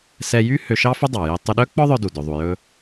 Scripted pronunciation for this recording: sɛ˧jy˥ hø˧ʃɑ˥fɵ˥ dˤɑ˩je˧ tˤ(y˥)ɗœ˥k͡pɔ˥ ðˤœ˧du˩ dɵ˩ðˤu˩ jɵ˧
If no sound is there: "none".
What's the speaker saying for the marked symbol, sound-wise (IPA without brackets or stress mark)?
y˧